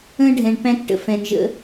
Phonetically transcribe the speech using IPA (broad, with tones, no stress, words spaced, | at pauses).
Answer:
ə̃˦ ɖʱɛ̃˧ɳpæ̃˦kʈə̰˧ fɛ̃˨nʒə̰˧